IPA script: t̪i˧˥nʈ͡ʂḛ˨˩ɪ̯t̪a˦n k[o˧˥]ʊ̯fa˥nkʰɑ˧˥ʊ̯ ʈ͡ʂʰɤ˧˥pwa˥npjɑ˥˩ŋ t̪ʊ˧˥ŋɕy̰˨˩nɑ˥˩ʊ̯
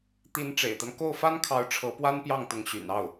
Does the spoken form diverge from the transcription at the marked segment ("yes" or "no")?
yes